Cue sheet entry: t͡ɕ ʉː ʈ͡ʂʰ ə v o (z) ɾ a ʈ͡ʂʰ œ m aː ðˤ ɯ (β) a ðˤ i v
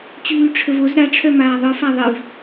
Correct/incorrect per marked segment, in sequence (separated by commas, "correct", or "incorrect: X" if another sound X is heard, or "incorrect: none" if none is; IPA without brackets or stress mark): correct, incorrect: f